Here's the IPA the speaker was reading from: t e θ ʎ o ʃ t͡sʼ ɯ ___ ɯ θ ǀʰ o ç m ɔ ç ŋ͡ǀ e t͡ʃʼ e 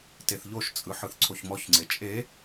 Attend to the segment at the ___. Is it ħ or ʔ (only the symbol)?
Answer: ħ